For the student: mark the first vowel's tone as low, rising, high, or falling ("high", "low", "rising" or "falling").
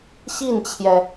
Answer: falling